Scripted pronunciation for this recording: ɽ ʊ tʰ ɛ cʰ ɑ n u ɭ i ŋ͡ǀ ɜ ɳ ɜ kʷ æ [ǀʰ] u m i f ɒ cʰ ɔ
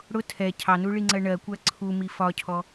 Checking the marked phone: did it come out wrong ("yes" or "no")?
no